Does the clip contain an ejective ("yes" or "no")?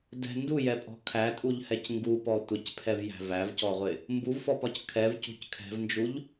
yes